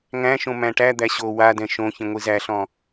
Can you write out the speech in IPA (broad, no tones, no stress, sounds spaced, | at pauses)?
ŋ æ̃ ʃ õ m æ̃ ʈ æ d̪ æ ɕ o w a d ɛ̃ ʃ õ ç ĩ ŋʷ i z æ ɬ ɔ̃